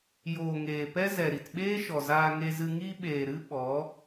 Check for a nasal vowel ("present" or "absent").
absent